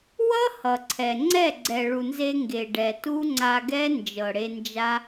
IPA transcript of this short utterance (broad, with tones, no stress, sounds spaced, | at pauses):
w ʌ˦ h ʌ˨ ǀʰ ɛ˨ ŋ͡ǀ ɛ˦˨ ɡ͡ǀ ɛ˨ ɭ u˨ n z e˧ ŋ ɡ e˨ ɖ ɛ˨ t u˦ ŋ͡ǀ a˧ ɡ ɛ˦ n d͡ʒ ɤ˨ ɽ e˧ n d͡ʒ a˦